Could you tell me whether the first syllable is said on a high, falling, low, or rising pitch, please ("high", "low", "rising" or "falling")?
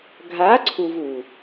rising